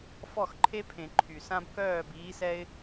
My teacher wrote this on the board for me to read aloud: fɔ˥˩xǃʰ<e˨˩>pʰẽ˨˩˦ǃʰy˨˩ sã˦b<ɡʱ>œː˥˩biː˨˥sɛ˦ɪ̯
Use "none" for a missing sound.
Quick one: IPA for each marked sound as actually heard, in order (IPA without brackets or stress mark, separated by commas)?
e˦, k